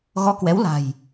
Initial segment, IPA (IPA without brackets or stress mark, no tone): ɣ